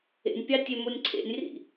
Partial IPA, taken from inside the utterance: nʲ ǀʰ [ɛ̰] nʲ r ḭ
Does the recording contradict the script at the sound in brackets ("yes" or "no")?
yes